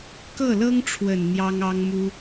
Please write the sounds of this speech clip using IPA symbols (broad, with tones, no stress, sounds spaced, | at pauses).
k ɤ˥˩ l ɤ˥ ŋ ʈ͡ʂʰ w ə˨˩ n n̪ j ɑ˥ ŋ ɑ˥ ŋ m u˥